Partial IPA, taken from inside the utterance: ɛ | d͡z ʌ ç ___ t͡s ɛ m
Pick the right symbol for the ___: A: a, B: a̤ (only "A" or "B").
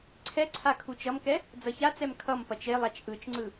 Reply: A